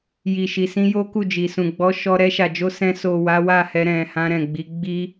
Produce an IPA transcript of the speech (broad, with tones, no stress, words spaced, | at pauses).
ji˨ʃi˨sĩ˧ jo˦ku˦˨d͡ʒi˨sũ˨ ɡ͡bɔ˨˦ʃɔ˧ ɾɛ˧ʃa˨d͡ʒo˧ sɛ̃˧ so˨ wa˨˦wa˦˨hɛ˧ ɾɛ̃˨ hã˧ɾɛ̃˨ɡ͡bi˨˦ ɡ͡bi˧